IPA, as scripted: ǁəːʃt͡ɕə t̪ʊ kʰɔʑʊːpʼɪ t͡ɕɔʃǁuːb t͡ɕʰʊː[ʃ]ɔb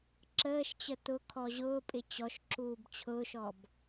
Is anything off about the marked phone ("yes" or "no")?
no